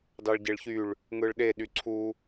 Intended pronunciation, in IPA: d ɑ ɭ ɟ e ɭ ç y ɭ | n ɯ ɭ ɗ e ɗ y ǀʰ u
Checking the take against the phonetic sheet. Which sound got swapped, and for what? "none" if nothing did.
n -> ŋ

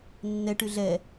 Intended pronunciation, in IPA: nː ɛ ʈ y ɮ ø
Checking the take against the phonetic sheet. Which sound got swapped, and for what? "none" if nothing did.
ø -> ɛ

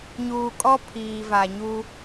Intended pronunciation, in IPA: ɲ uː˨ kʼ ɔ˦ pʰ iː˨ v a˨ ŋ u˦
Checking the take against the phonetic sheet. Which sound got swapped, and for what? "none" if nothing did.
ŋ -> ɲ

